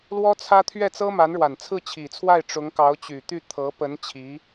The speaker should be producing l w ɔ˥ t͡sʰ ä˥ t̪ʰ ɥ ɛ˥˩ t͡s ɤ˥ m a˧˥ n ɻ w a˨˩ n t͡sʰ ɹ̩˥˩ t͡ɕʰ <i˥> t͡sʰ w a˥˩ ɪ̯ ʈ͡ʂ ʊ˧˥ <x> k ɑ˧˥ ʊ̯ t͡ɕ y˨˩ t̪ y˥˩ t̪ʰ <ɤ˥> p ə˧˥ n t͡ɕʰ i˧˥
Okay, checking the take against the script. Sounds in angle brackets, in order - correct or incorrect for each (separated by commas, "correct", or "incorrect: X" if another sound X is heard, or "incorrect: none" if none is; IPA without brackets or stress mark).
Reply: incorrect: i˨˩, incorrect: ŋ, incorrect: ɤ˧˥